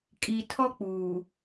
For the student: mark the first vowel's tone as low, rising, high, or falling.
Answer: low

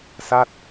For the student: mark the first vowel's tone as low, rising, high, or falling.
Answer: falling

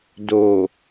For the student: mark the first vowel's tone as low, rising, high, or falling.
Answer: low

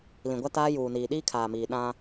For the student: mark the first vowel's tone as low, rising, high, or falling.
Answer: low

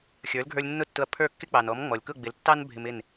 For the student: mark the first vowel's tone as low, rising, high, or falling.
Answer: rising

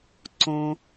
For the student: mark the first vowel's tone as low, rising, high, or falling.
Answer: low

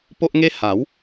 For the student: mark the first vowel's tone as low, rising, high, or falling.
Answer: high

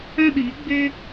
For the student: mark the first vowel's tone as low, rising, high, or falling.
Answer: high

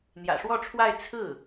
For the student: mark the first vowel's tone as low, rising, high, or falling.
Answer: low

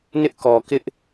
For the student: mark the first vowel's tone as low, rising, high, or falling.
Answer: high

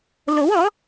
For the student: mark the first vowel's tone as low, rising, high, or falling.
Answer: rising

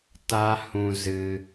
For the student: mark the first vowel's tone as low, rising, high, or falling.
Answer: high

